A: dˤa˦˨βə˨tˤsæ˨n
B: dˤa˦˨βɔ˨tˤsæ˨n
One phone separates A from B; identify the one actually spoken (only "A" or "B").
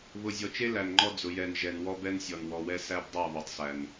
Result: B